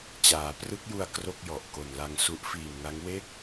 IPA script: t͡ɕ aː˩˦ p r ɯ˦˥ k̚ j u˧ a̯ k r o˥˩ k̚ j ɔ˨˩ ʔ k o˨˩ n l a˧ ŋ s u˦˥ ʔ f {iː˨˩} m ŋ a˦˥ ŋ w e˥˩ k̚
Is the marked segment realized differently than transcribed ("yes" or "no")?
no